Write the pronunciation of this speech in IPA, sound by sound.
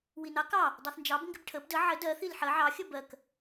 winɑ kɑ | dˤɜθnd͡ʒɑb ŋɡɪbʈʰəb də ʕə dɜ θilħɜ ʕɑ xʲəbɜk

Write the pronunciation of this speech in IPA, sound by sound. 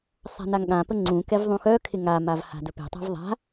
sˤa̤naŋɠãpə ŋ͡ǀũkɛv ðˤũxœkʰɪ ŋamav ha̤dɵpe̤tˤa̤v ðˤa̤

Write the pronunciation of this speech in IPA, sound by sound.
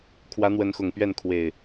kʰwä˨˦n̪wə˨˦nxʊ˨˩ŋ pɥɛ˥˨nkʰwe˨˩ɪ̯

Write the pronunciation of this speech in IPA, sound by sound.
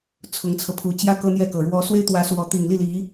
t͡sʰʊ˧˥ŋt͡sʰɤ˧pʰu˧˥ t͡ɕjä˥ kɤ˥n̪jɛ˥˩kɤ˨˩ ɻwɔ˧˥swe˥ɪ̯ t̪wä˧˥ swɔ˧˥ t̪i˨˩ŋli˥˩li˧˥

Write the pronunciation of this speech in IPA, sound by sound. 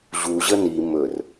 ʑuʑə ni mɵr

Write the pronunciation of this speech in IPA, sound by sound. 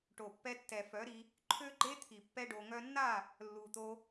ʈo˨pːɛ˧tːɛ˨fœ˨˦ ɾi˧ | ǃʰø˦ɡ͡ǃe˦t̪ʰi˨ pːɛ˦ɖo˧ŋœ˦ nːa˦˨ | lːu˨t̪o˧

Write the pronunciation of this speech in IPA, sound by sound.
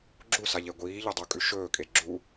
ɡ͡ǁusaʎe ɡʷiːʎɵdˤukʼʉ ʃɵːkʼe ɡ͡ǁu

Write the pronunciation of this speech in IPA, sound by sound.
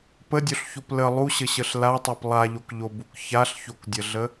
pədʲoɬçop lə lˠuɕəɕəɬ latˤop lˠaʎokʎobuk çaɬçokdʲəɮə

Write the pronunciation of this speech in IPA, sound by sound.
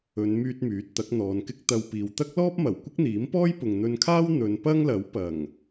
ɵ˨˧n myː˧t̚ myː˨˥t̚t̪ɐ˨˥k̚n̪ɔː˨˧nkɪ˥k̚ t̪ɐ˧wpiː˨w t̪ɐ˥k̚lɔː˥p̚mɐ˨˩w kʷɪ˥k̚n̪iː˨˥mpɔː˥j pʊ˨ŋn̪ɵ˧nkʰaː˥w n̪ɵ˨˧npɐ˥ŋlɐ˨˥w pɐ˨˩ŋ

